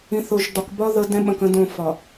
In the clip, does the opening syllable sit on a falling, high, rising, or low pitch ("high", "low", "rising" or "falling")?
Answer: rising